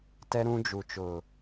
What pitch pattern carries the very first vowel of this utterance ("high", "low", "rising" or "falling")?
high